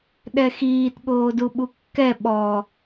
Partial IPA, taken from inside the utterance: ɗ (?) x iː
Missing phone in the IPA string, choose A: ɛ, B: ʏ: A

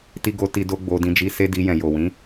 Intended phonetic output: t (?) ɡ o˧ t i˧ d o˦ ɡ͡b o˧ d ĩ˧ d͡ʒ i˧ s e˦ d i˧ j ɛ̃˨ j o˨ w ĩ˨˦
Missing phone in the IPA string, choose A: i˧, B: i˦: A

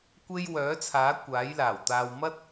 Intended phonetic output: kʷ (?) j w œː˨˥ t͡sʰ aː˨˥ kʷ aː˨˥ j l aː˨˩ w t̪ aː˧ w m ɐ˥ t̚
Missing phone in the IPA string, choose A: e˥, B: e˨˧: A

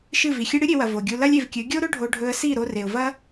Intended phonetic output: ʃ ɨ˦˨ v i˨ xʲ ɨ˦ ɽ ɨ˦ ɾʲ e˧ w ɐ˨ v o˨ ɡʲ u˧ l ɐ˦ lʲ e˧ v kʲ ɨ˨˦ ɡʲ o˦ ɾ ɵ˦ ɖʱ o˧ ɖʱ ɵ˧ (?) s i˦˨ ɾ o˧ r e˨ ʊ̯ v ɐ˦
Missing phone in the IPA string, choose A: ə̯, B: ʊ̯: A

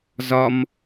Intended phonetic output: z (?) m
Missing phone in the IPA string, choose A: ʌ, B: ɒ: B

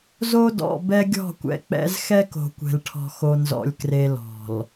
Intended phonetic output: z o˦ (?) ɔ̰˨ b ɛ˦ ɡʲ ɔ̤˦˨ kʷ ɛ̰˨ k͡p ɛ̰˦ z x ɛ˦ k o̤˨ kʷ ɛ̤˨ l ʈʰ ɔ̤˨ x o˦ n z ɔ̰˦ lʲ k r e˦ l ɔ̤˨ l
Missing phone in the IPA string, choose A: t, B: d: B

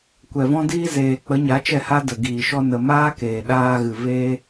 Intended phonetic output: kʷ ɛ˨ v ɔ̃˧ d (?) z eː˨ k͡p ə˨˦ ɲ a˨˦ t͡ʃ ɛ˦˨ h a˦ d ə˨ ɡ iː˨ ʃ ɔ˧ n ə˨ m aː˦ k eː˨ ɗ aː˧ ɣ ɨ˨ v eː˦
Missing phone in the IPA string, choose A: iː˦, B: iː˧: B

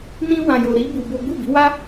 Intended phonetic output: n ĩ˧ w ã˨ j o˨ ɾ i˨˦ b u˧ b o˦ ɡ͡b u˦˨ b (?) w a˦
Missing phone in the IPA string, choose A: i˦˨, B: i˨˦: B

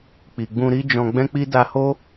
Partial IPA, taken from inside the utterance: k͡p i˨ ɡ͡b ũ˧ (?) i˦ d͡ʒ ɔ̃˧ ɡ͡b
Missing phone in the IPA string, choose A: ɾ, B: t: A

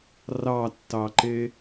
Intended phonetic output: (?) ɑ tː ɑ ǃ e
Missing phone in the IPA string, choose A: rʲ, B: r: B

